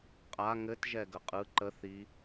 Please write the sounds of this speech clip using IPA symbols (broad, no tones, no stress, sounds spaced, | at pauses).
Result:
qʼ a ŋ ɘ t ʒ ɛ ɡ ə qʼ ɯ ǃ ə θ i